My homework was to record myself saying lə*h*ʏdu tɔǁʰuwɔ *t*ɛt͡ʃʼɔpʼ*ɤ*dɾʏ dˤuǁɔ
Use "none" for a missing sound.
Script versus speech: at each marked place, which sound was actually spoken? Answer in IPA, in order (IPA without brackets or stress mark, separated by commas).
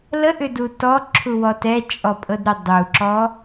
ʔ, t, ɤ